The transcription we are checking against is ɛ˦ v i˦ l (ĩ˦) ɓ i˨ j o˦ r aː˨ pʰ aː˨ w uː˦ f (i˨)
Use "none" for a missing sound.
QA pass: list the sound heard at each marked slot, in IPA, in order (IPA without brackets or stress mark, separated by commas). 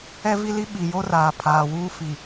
i˦, i˨